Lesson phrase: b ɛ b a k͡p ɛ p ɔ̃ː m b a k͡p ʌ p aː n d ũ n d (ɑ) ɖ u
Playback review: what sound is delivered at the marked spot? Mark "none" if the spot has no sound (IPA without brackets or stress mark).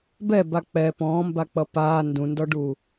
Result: ɔ